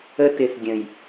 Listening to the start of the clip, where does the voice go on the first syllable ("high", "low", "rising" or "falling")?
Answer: high